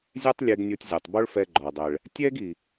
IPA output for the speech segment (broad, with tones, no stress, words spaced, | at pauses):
zʲɛ˥tˤlʲe˧ɡ nʲo˧tʲzʲɔ˩tˤbo˥ɭfɛ˧ ɡ͡ǃɔ˩dˤɛ˩ɭ | tʲɛ˥ɡi˩